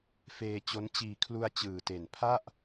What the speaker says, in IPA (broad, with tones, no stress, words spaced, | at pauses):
feː˧ t͡ɕo˦˥n t͡ɕiː˨˩kʰlu˧a̯ t͡ɕɯː˨˩te˨˩n pʰa˥˩ʔ